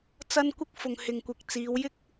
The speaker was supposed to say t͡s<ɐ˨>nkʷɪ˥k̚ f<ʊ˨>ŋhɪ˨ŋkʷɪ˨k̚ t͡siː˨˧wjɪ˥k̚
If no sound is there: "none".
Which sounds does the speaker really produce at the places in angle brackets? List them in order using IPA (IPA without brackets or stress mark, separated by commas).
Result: ɐ˥, ʊ˨